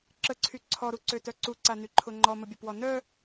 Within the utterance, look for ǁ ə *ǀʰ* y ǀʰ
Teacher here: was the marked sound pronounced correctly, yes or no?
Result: yes